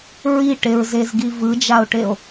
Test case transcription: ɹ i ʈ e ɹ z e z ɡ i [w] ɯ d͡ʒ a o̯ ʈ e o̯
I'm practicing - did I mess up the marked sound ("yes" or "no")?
yes